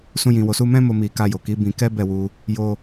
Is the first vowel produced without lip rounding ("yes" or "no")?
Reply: no